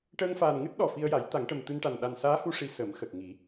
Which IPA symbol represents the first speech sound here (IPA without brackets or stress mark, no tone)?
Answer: ʈ